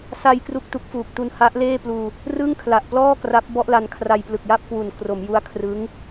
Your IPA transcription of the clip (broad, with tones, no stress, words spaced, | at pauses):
sa˧j kru˥˩k̚tu˦˥k̚fuː˨˩k̚ tu˧nha˦˥ʔ leː˥˩pluː˧ | rɯ˥˩ŋkʰla˨˩ʔplɔː˥˩ kra˦˥p̚bɔ˥˩ʔla˧nkʰra˧j plɯ˨˩k̚ja˥˩p̚kwu˨˩n kro˩˦mju˦˥a̯ kʰrɯ˦˥ŋ